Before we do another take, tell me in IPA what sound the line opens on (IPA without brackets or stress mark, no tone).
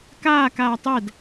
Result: k